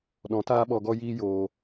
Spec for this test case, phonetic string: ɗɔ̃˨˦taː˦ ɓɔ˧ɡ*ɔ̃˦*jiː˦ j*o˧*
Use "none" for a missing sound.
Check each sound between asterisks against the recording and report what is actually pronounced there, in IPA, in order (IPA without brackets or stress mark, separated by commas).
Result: ɔ˦, oː˧